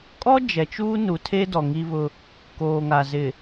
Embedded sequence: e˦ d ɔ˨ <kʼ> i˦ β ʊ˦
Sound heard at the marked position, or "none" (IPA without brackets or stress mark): ŋ